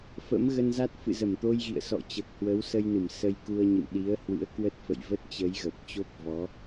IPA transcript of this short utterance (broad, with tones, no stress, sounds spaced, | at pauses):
f ə̰˧˥ m ɣ ə˧ n z a˦˥ t̚ f ɨ̰˧˨ z ə˧˩ m t̪ o˧ j ɣ ḭ˧˨ ə̯ s ɔ̰˧˨ t͡ɕ əː˨˩ k̚ h w ə˨˦ w s ə˧ j n ɨ˧˩ m s ə˧ j k u˧ ə̯ ɲ ɨ̰˧˨ m ɗ i˨˦ ə̯ h w ɨ̰˧˥ ə̯ k w ə˦˥ t̚ f ə̰˧˨ j v ə˦˥ t̚ t͡ɕ ə˨˦ j ɣ ə˨˩ p̚ t͡ɕ o˦˥ p̚ v ɔ˨˦